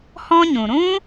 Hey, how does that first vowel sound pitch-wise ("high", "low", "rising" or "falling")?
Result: high